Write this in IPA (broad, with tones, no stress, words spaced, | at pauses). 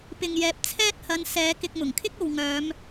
pɪ˨ŋjɛː˨p̚ t͡sʰɛː˥t̚hɐ˨˧n sɛː˨˧ kɪ˧k̚mʊ˨˩ŋkʰɪ˥k̚ o˨wŋœː˨˧m